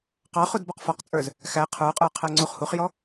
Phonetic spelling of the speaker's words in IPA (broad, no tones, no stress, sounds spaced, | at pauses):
q ɑ χ u d b ɔ q f ɔ q t͡sʼ ə˞ z | x æ qʰ ə˞ qʼ ə˞ qʰ æ ŋ͡ǀ u χ h u χ j ɔ